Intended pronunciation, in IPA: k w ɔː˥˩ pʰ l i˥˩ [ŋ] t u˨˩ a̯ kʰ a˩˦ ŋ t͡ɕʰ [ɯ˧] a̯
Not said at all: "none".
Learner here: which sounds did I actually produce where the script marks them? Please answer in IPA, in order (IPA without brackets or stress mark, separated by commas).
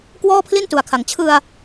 n, ɯ˧